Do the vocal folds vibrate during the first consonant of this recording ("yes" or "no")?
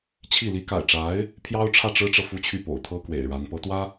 no